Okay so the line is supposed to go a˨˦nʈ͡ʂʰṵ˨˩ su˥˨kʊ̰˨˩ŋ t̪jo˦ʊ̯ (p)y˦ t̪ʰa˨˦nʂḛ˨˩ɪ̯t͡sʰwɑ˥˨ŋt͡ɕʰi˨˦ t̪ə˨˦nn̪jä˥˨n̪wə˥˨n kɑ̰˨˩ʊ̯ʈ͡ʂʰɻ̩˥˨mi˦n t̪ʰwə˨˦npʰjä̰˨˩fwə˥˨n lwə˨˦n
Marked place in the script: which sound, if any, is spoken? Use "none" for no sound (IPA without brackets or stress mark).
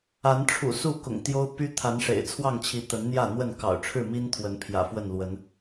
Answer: p